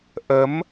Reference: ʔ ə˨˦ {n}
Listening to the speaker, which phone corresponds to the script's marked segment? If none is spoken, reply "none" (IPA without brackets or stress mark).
m